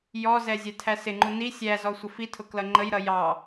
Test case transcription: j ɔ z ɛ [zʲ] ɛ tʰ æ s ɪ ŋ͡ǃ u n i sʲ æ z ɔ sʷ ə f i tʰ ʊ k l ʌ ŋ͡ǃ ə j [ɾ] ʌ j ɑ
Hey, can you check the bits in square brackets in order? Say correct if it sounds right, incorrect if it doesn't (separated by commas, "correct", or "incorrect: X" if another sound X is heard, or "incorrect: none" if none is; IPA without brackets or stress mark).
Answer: correct, correct